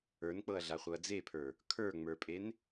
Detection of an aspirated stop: present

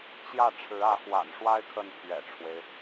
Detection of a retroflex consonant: present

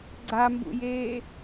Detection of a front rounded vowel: absent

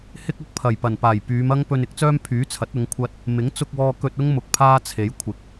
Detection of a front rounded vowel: present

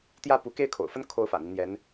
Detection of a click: absent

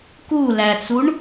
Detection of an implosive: absent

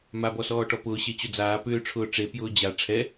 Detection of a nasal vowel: absent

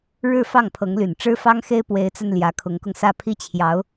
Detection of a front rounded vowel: present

